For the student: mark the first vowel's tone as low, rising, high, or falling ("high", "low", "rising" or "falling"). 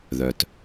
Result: low